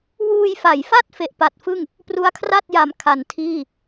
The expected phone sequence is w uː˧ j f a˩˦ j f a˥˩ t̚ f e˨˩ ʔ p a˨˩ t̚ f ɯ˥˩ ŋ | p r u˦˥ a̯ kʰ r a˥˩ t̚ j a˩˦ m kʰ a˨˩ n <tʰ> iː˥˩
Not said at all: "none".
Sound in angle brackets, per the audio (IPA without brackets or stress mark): tʰ